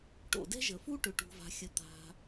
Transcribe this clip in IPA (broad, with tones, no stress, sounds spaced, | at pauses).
ʈ o̰˩ d ɛ̤˥ ʒ ə˩ f u˥ ʈ ʏ˩ ʈ ṳ˩ v a̤˩ xʲ ə˩ t̪ a̤˩